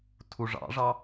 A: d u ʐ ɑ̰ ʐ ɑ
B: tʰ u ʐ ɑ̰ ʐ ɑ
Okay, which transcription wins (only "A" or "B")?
B